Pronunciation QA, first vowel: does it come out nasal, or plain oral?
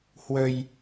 oral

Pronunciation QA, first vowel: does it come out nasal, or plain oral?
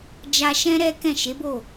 oral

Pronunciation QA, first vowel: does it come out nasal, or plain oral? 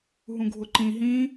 nasal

